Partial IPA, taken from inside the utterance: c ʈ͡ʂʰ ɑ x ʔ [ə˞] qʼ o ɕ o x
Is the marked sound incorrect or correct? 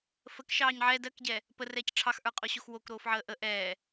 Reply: correct